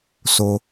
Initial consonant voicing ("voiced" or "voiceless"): voiceless